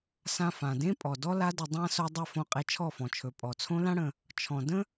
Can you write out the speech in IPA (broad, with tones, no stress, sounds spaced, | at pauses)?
s ã˧ f ã˨ d ẽ˦ pʼ ɔ˨ d ɔ˦ l a˦ d ə˧ dˤ ã˦ s o˦ dˤ e˦ f õ˧ qʼ e˧ t͡ʃʰ ɔ˦˨ f ɔ̃˨ t͡ʃʰ ɵ˨ pʼ ɔ˨ t͡sʰ õ˦ l ã˦ ɽ ə̃˧ | t͡ʃʰ ɔ̃˨ d ə̃˦